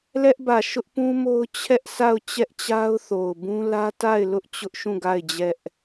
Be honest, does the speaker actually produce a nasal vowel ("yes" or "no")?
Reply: yes